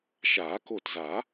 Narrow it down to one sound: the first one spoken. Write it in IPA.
ʃ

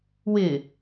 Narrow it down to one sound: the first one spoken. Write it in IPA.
w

